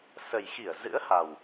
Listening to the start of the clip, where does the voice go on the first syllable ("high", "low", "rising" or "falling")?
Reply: low